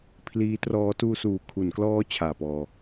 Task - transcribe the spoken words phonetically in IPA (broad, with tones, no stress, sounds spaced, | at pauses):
pʰ l iː˦˥ t r ɔː˦˥ t uː˧ s uː˨˩ kʰ u˩˦ n k l ɔː˦˥ t͡ɕʰ aː˨˩ p ɔː˧